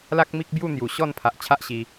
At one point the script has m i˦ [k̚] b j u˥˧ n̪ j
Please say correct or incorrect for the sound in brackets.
correct